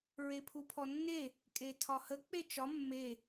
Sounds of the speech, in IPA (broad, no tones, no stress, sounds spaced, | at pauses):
ɹ e pʰ u pʰ ɔ nː e | kʼ e tʰ ɒ h ə k͡p e t͡ʃ ɒ mː e